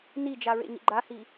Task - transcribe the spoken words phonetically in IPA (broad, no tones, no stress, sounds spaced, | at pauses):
n i d͡ʒ a ɹ ḛ ɲ ḭ ɡ͡ǃ a h i